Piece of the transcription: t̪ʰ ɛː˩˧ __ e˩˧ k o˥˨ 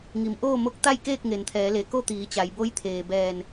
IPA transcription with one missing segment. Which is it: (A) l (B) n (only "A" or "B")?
A